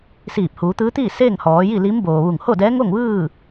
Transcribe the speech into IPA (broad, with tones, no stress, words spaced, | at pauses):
siː˧˩p̚huː˩˧t̪ɯː˧˥t̪iː˥˨ seː˥˨ŋhɔː˩˧ ji˥˨li˧˥mboː˩ʋu˧˩ŋ ho˥˨dɛː˧˥ŋo˥˨ŋʋɯː˥˨